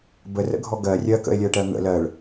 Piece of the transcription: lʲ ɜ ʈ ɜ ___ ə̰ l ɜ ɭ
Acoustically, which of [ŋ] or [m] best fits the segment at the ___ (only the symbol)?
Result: ŋ